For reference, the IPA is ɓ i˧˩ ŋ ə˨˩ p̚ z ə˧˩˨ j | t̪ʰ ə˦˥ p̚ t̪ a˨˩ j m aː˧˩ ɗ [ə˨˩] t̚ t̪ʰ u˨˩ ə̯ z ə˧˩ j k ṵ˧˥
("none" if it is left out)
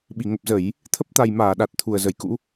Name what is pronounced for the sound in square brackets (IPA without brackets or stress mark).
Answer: a˨˩